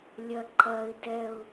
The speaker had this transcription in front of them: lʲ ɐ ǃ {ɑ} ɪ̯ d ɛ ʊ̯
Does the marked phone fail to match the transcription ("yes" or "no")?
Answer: yes